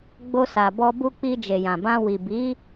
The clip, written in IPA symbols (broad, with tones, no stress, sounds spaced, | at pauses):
ɡ͡b o˧ s a˨ b ɔ˧ b u˧ k͡p i˧ d͡ʒ e˨ j ã˨ b ã˧ w i˨ b i˨˦